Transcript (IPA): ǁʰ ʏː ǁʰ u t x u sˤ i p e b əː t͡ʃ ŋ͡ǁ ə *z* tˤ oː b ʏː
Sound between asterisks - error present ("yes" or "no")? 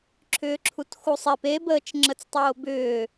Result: yes